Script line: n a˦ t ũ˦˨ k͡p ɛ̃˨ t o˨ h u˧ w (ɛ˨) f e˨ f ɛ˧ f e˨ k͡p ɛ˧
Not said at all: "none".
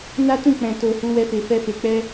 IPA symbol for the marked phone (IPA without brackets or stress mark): ɛ˧